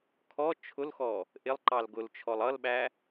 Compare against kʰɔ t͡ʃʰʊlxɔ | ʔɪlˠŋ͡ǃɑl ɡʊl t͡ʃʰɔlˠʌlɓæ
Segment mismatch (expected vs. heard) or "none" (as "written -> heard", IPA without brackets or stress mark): ŋ͡ǃ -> ǃ